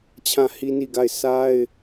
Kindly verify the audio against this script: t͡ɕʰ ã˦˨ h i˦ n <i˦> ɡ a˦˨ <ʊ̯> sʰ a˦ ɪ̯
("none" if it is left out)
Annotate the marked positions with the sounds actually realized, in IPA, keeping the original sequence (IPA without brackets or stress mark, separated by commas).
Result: i˦˨, ɪ̯